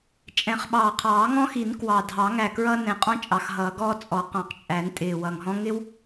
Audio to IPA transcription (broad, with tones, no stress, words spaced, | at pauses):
t͡ʃʼɛ̃˨˩χɓɑː˨˩qʰɑː˨˩˦ ŋɔ̃˥xi˨˩˦n kwɑ˨˩dʱɑ˨˩˦ ŋæ˨˩kɹʌː˥nɛ̃˨˩˦qʼɔ̃˥ t͡ʃʼɑ˨˩xɦʌː˨˩˦ɡɔː˥ t͡sʼɔ˨˩˦ qɑ̃˨˩qt͡ʃʼæ˨˩˦n tʼɪː˨˩wʌ˨˩ŋɦɔ̃˥ ŋɪ˥w